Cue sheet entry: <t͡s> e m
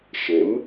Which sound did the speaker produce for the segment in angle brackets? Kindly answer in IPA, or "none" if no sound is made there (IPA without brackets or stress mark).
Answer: ʃ